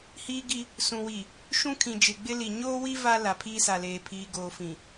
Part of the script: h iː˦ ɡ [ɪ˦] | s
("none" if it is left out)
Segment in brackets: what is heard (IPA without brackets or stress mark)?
i˦